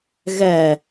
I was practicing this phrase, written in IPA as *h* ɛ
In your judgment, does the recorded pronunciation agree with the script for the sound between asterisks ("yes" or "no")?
no